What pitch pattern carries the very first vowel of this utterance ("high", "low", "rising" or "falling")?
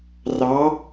rising